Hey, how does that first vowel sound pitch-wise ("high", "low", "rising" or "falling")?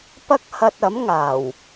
high